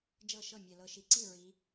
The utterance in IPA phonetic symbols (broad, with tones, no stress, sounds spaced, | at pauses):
d͡ʒ ɤ˥˩ ʃ ɤ˥˩ mʲ ɛ˨˩ l ɤ˨˩ ʃ i˨˩ ǀ i˥˩ ɹ i˨˦